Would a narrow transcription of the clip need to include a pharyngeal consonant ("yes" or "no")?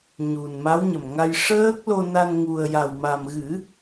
no